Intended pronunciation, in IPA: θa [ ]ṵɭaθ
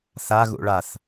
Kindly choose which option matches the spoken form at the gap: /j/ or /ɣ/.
ɣ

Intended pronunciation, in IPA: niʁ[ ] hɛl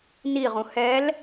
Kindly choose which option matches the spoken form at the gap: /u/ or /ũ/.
ũ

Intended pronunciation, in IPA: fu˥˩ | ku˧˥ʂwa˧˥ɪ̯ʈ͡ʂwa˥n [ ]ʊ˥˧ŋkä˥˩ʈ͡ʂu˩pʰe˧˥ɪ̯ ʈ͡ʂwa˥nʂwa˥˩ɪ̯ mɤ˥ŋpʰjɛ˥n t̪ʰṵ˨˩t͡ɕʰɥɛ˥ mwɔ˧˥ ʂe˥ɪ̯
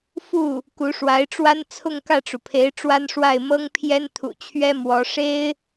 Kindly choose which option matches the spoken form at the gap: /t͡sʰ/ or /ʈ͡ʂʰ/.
t͡sʰ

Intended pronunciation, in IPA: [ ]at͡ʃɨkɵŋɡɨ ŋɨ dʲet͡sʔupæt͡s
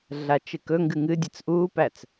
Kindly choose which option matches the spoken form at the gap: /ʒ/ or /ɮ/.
ɮ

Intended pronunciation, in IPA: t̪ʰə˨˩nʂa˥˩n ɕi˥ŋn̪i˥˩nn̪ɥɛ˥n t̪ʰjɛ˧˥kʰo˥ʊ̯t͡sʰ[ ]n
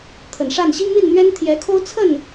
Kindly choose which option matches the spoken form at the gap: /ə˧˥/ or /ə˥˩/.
ə˥˩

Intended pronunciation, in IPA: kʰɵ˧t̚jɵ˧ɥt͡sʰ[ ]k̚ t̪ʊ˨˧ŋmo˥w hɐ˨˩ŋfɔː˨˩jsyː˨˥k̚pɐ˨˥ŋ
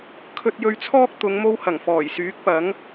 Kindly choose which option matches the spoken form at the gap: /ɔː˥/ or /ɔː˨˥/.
ɔː˥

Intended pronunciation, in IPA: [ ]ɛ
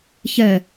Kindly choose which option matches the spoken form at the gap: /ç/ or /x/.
ç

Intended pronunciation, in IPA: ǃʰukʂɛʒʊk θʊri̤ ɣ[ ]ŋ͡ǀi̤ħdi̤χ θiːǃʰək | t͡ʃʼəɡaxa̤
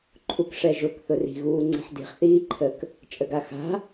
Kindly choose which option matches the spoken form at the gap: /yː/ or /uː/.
uː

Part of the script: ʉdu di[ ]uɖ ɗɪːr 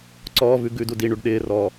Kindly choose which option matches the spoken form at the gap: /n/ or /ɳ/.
ɳ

